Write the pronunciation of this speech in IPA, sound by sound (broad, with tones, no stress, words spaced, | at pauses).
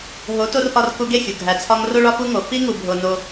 ɦo˨˦to˧r ʔɒ˧r ku˧ɡe˦˨xʲu˨ ɡʱæ˨t͡sʰɒ˧ŋro˦ ɭɒ˦fu˦ŋo˨˦ fi˧ŋu˨bʱo˨ no˦